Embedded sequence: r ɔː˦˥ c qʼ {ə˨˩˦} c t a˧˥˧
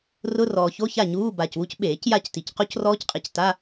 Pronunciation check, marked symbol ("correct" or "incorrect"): incorrect